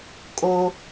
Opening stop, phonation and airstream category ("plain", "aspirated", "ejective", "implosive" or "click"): ejective